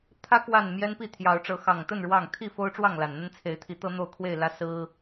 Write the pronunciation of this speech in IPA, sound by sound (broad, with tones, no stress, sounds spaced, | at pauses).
t̪ʰ ä˦ k w a˥˨ n m j ɛ˦ n p i˥˨ t̪ʰ j ɑ˨˦ ʊ̯ ʈ͡ʂ ɤ˨˦ x ɑ˨˩ ŋ t̪ ə˥˨ n ɻ w ɑ˥˨ ŋ t̪ʰ i˥˨ f o˦ ʊ̯ ʈ͡ʂ w ɑ˥˨ ŋ l a˨˩ n n̪ ə˦ n t͡sʰ e˨˦ ɪ̯ t̪ʰ i˨˦ t̪ ɤ˦ n̪ o˥˨ ʊ̯ kʰ w e˥˨ ɪ̯ l ä˦ s ɹ̩˦